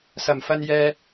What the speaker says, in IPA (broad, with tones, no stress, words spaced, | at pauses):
sɐ˨˩mfɐ˧n jɛː˧